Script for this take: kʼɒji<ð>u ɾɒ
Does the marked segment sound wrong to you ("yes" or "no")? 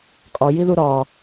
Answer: no